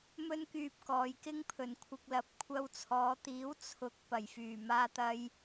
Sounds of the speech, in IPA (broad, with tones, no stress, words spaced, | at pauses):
mɵ˥nkyː˧p̚ kɔː˨˧jkɪ˥ŋpʰɵ˨n kʷʰɪ˧k̚lɐ˨p̚ kʷʰɐ˧wt͡sʰɔː˨˧t̪iː˨˥w t͡sʰʊ˨˥k̚ pɐ˨˩jfyː˨˩ maː˧t̪ɐ˧j